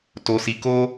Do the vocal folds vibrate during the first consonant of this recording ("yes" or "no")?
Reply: no